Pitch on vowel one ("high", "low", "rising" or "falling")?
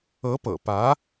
rising